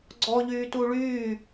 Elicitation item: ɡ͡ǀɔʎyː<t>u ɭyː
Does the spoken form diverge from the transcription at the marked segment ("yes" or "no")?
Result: no